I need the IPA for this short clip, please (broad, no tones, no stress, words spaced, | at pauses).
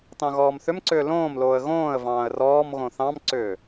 tɑ̃ɣɔːmθʏmǀʏː lõːmloːə̯ ɣõːə̯ vɑ̃ːə̯rɔːmɣõ θɑ̃mǀʏː